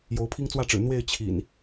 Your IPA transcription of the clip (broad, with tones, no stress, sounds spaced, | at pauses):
j o˨˦ ʊ̯ pʰ i˦ ŋ t͡s w ä˥˨ ʈ͡ʂ ɻ̩˨˩ n̪ w e˥˨ ɪ̯ t͡ɕʰ ḭ˨˩ n